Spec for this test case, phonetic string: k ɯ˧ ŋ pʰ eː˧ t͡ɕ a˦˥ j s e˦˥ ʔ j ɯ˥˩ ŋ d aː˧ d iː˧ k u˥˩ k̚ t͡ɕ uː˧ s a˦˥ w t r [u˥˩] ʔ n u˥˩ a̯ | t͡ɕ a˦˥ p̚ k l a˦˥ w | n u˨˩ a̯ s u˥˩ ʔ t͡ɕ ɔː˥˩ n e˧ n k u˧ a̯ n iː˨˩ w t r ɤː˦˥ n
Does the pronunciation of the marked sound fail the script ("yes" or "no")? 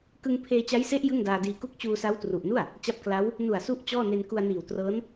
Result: yes